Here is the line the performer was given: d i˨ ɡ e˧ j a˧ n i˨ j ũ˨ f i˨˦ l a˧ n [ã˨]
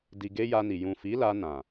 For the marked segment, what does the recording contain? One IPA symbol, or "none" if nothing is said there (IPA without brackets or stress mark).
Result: ã˨